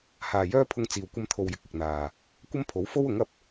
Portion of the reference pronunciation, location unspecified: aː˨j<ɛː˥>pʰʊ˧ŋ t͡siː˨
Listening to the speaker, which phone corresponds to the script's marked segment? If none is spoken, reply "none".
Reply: œː˥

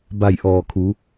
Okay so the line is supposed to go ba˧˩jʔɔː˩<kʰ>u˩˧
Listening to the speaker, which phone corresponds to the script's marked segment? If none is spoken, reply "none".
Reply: kʰ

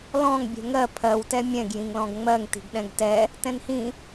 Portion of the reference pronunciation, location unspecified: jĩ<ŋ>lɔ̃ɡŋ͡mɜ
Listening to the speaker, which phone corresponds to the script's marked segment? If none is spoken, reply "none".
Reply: ŋ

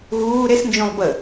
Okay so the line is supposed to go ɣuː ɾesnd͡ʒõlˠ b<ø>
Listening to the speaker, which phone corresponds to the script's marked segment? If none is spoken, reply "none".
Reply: ə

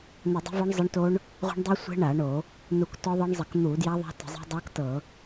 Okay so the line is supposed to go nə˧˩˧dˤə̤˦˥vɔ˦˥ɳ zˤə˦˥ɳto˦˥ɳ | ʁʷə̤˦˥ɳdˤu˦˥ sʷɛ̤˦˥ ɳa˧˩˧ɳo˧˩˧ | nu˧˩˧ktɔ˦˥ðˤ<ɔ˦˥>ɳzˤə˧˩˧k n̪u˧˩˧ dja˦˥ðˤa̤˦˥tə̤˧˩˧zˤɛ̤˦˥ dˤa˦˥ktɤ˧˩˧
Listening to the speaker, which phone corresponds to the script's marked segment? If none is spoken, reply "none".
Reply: ɤ˦˥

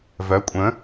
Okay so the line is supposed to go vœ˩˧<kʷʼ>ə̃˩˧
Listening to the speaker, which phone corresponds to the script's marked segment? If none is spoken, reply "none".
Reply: kʷʼ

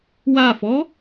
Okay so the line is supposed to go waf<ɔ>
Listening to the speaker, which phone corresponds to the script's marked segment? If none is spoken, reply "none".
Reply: ɔ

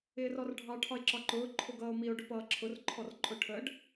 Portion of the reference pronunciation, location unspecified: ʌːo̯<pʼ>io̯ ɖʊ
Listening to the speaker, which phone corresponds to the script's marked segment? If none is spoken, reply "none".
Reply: m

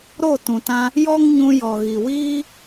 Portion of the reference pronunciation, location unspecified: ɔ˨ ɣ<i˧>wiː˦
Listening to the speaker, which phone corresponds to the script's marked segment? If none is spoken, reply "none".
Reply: i˨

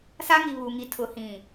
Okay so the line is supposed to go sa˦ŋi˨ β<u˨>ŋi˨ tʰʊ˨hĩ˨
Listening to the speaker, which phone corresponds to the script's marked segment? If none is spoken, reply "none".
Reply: u˨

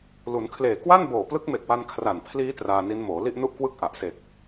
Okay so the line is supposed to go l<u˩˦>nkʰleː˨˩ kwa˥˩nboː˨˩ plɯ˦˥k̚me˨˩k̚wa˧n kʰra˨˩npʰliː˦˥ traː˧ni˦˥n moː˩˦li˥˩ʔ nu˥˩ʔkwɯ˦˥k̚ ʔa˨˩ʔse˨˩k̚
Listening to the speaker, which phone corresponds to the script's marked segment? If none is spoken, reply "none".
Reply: u˩˦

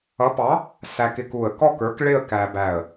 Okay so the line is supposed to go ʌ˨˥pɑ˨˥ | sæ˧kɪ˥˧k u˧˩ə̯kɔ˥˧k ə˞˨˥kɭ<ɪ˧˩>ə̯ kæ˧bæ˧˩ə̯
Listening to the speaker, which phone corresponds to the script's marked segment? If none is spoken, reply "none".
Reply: ɪ˥˧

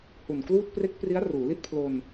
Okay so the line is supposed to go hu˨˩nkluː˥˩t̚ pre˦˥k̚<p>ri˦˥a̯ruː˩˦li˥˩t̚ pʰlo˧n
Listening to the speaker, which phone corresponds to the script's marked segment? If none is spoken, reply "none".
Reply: p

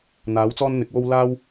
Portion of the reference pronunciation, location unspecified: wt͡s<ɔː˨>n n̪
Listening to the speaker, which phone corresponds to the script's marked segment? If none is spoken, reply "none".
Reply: ɔː˥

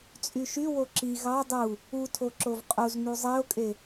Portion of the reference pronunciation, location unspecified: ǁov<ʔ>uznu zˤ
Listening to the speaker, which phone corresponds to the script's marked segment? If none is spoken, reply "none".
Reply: qʼ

